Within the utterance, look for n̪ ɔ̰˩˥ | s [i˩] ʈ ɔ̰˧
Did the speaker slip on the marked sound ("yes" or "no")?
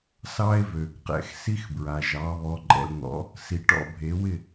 no